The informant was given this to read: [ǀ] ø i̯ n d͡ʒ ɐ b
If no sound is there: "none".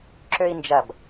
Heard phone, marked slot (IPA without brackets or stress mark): ǁ